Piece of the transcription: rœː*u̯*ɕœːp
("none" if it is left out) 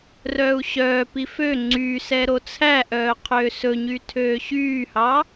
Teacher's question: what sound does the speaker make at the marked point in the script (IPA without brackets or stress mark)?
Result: u̯